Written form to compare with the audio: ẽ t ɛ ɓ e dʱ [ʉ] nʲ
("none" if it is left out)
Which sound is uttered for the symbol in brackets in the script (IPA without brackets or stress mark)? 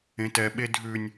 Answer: ʉ